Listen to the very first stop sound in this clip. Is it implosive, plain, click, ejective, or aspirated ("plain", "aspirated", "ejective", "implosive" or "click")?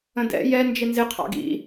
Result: plain